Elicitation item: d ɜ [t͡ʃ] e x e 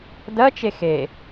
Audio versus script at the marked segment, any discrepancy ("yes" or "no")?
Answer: no